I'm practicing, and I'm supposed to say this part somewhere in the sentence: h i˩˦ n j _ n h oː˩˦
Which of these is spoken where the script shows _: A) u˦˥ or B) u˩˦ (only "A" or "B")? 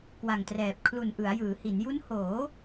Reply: A